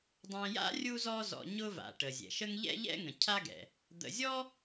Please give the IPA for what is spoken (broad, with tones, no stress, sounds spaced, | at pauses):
dˤ ɛ̃˨ j a̰˥ rʲ u˦ z ɔ˦ z ɔ̰˨ ɲ ʊ˦ v a̰˩ ʈ ə˩ zʲ ɛ̰˩ ʃ ə˥ ŋ ʎ ɛ̰˥ ʎ ɛ̰˥ ŋ ə̃˩ cʰ a˥ ɡ ɛ̰˩ | d̪ ə̰˨ zʲ ɔ˥